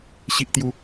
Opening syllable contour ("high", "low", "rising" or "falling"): high